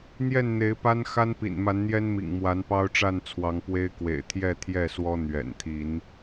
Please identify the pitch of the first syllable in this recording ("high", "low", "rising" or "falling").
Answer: falling